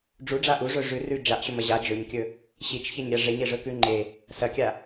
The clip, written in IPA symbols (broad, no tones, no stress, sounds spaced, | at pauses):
ɖ͡ʐ u ɖ͡ʐ a ʔ u ʐ ɵ ʐ ʉ r ʉ d͡ʒ a ʔ ɕ ɵ m ɐ ʑ a d͡ʒ ɵ ɲ kʲ ɵ | ɕ i t͡ʃ ç e ɲ ɾʲ a ʐ e ɲ e ʐ ɵ k ʉ ŋ͡ǃ e | s ɐ kʲ a